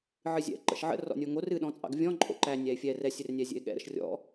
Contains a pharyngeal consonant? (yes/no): yes